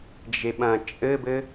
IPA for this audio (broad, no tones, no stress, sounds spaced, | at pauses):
d͡ʒ e ɓ ɐ̃ t͡ʃʼ ɘ b ɘ